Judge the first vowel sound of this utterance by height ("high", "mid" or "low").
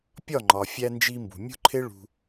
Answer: low